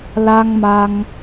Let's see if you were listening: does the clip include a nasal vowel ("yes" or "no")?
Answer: no